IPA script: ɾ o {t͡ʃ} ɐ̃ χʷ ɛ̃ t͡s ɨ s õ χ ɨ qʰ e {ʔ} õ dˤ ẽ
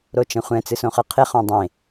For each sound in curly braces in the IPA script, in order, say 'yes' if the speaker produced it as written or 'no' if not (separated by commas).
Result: yes, no